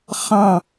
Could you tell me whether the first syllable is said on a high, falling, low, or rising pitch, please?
falling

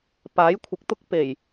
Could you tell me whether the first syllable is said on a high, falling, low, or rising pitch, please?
rising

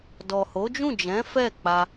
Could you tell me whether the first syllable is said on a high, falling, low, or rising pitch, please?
low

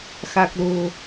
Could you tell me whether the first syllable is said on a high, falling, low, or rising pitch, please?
low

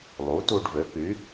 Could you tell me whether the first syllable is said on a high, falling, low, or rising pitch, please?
rising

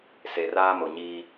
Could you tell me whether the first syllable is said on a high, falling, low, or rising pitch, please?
low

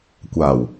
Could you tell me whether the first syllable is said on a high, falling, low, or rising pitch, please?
low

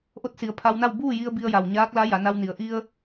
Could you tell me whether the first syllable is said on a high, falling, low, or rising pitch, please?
rising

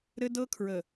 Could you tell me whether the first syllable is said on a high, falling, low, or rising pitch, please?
high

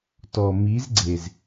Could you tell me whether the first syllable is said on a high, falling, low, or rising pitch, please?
low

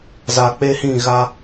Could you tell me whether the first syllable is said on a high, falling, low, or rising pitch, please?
low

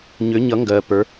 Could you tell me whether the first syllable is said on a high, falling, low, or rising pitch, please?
rising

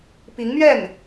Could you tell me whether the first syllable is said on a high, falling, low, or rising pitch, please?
rising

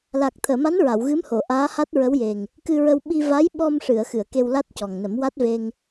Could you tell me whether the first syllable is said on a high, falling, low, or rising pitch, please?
low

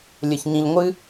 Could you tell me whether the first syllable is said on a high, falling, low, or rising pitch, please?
low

